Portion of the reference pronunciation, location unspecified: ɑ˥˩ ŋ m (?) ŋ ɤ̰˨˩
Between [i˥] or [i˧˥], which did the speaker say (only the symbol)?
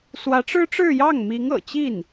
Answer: i˧˥